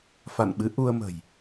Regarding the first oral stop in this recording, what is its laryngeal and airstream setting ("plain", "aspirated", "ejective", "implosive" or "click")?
implosive